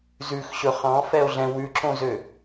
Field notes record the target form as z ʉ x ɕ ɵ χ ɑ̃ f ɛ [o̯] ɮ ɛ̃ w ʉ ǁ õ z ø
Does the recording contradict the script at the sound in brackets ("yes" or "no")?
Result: no